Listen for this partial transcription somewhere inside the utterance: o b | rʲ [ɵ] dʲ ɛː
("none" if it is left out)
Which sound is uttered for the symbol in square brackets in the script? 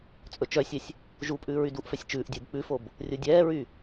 o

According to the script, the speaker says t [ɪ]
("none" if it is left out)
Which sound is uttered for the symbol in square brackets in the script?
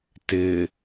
ɪ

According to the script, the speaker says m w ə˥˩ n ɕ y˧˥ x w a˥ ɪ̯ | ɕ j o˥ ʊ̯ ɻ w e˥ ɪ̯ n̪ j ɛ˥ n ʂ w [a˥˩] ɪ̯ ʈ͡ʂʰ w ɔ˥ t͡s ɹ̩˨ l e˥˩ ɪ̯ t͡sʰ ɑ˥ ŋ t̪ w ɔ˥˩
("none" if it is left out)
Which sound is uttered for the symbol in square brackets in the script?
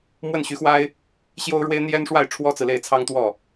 a˥˩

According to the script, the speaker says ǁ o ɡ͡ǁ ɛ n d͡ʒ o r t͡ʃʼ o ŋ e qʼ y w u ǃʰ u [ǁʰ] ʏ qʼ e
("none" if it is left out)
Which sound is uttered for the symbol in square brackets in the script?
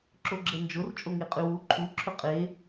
ǁʰ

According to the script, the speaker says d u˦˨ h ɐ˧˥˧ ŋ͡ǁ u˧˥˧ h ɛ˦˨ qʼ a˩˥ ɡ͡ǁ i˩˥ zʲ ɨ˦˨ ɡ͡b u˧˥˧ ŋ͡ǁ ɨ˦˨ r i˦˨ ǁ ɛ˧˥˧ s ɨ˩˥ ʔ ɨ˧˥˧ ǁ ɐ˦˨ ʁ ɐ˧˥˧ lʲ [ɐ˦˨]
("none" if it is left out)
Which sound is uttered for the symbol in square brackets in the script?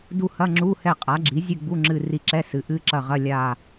a˦˨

